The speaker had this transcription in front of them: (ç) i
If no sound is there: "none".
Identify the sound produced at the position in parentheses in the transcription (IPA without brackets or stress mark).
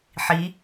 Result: ħ